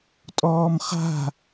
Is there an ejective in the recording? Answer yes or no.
yes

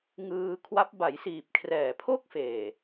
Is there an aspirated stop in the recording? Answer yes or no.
yes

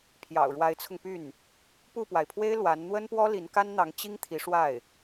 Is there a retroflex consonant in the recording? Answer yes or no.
yes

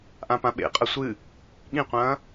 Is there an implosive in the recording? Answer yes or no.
yes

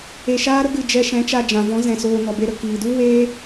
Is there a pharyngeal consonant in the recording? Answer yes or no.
no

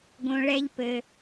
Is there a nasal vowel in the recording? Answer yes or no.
yes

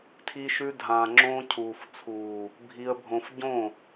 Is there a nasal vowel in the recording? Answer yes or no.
yes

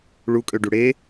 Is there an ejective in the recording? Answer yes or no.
yes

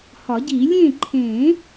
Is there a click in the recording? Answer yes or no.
yes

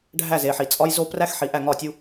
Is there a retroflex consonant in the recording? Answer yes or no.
yes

